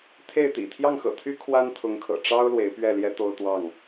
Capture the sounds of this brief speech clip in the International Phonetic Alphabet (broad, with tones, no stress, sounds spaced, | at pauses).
t̪ʰ e˥˨ ɪ̯ t̪ ḭ˨˩ t̪ʰ j ɑ˥˨ ŋ x ɤ̰˨˩ t̪ʰ y˦ kʰ w a˦ n t̪ʰ ʊ˨˦ ŋ kʰ ɤ̰˨˩ ʈ͡ʂ ɑ˦ ʊ̯ l w e˨˦ ɪ̯ p ɥ ɛ˥˨ l j ɛ˦ t̪ o˦ ʊ̯ t̪ w ɑ˥˨ ŋ